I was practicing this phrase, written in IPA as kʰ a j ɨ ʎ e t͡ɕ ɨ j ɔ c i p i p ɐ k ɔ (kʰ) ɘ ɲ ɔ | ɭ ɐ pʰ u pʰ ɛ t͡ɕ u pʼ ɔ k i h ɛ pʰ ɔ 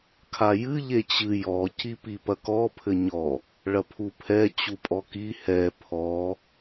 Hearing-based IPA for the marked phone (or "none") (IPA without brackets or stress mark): pʰ